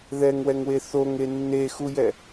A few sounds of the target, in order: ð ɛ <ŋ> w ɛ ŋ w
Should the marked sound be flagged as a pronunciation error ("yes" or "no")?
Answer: no